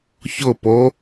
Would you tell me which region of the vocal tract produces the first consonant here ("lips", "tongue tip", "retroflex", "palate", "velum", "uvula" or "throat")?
palate